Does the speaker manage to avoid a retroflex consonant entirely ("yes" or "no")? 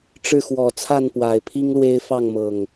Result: no